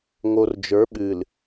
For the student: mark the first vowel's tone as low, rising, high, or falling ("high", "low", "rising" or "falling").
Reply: low